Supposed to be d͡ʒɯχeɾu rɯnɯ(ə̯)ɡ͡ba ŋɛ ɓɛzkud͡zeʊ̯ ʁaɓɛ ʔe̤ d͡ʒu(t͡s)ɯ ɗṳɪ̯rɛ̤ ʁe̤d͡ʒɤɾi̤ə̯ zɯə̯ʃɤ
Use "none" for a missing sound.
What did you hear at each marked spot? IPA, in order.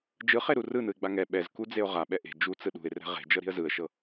ɪ̯, t͡s

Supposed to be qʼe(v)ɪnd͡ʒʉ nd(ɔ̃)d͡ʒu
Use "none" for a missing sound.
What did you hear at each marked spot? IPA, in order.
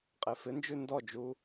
f, ɔ

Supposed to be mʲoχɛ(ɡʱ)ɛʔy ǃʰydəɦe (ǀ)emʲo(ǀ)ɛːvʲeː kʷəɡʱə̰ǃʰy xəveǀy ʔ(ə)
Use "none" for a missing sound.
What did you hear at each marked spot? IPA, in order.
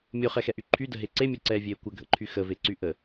x, ǀ, ǀ, ə

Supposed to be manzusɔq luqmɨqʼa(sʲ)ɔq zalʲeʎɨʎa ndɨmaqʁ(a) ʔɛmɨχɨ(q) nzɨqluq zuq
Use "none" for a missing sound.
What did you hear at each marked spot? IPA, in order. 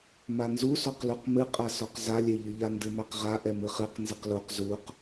s, a, q

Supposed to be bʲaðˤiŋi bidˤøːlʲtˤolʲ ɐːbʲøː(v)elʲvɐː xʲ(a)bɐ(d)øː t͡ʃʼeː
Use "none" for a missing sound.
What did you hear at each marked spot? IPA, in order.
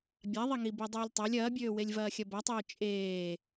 w, ɐ, tˤ

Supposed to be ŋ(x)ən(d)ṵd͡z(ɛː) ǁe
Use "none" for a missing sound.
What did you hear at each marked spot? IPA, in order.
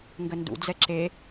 ɡ, d, ɛ

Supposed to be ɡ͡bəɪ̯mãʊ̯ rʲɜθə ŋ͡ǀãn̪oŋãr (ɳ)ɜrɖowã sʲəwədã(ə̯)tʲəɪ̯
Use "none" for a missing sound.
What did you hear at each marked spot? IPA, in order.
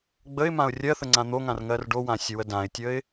ŋ, ɪ̯

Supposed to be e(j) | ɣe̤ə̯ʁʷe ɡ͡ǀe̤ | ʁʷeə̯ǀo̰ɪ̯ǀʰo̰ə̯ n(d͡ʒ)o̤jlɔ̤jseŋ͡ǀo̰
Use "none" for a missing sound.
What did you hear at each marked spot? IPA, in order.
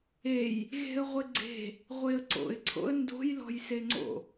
j, d

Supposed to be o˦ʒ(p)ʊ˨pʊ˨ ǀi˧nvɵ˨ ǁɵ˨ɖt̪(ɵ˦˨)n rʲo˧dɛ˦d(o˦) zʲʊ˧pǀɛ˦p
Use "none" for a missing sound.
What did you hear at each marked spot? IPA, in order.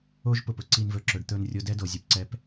p, ɵ˦˨, o˨

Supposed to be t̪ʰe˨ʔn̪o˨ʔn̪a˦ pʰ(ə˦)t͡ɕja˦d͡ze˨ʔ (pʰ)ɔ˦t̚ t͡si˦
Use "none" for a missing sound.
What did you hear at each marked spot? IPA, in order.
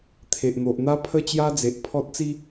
ə˦, pʰ

